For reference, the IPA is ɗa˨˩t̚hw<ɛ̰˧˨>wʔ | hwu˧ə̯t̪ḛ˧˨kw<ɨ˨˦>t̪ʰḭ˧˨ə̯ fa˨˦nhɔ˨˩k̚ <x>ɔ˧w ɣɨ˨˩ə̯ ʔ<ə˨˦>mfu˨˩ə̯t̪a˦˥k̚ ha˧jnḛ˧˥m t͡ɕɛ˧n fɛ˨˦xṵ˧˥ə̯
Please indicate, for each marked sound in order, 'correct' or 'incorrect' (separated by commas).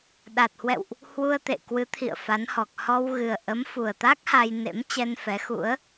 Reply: correct, correct, incorrect, correct